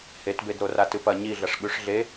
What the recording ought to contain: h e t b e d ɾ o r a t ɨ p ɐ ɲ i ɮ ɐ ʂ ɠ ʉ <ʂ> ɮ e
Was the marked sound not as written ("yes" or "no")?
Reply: no